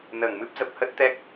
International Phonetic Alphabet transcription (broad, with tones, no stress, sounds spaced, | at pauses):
n əː˧˩ ŋ m ɨ˦˥ p̚ z ə˨˩ p̚ h ə˦˥ t̚ t̪ ɛ˦˥ k̚